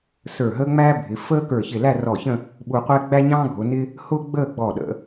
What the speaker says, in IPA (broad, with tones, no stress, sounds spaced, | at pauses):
s ə˞˧˩ ɦ əː˥ ŋ͡m æː˥ bʱ ɪ˩˧ f əː˥ k ə˞˧˩ ç ɪ˧˩ l æ˥˧ r ɔ˧˩ ç ə̃˥˧ | ɓ u˧ qʷ ɛ˥ ɡ͡b æ˥ ɲ ɑ̃ː˥ ɡʱ ʊ˩˧ n ɪ˥ | h ʊː˥ ɡ͡b əː˥˧ ɡ͡b ɔ˧˩ ɗ ə̰˩˧